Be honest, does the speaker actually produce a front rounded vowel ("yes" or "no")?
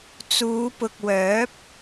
yes